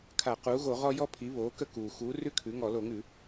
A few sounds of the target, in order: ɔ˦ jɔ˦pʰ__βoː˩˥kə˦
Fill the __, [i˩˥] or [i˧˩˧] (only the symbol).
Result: i˩˥